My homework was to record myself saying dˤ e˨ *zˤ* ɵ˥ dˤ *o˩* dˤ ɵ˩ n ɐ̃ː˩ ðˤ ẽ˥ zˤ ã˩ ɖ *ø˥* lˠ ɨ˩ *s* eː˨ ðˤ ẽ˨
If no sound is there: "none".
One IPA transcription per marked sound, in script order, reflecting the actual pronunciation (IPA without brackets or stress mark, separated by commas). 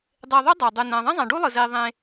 ðˤ, o˩, u˥, z